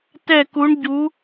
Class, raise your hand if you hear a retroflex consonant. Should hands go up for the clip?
yes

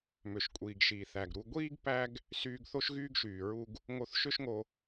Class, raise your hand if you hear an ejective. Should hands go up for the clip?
yes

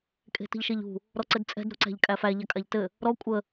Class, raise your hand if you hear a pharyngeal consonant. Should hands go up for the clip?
no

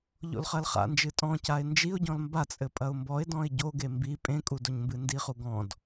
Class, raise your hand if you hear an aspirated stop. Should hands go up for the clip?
no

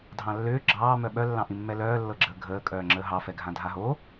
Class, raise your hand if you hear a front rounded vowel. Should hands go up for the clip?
yes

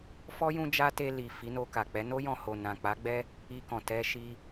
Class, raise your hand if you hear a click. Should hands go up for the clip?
no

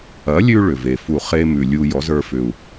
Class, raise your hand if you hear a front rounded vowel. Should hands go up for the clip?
yes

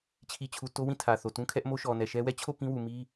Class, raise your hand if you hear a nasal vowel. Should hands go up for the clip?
yes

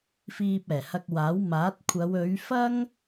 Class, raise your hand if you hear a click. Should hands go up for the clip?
no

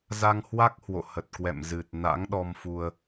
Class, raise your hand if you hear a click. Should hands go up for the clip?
no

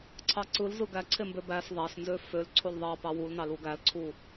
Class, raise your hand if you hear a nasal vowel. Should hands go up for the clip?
no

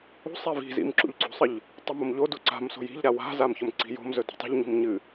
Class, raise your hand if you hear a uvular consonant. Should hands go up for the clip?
no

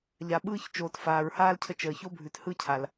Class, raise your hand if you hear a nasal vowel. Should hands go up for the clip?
no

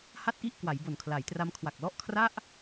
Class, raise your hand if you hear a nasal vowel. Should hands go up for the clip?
no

